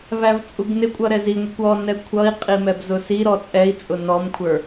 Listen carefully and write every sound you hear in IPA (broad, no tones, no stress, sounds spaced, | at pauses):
v æ v t͡sʼ u ɡ n ɪ kʷʼ ʌ ɾ ɛ z i ŋʷ i kʷ ɔ n ɛ kʷʰ ʌ i̯ qʼ i m ɛ b z ʊ s i ɾ ɔ t͡sʼ ɛ i̯ t͡sʼ ʊ n ɔ m kʷʰ ə˞